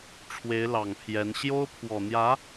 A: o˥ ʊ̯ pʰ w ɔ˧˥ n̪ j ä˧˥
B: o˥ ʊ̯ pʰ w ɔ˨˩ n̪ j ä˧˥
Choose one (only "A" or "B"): B